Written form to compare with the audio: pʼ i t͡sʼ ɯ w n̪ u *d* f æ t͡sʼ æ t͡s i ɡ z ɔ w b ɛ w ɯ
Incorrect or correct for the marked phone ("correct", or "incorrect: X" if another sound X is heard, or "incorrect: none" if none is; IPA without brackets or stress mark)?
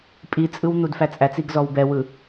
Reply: correct